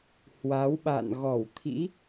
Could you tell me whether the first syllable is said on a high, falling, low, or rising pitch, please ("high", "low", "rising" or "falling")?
rising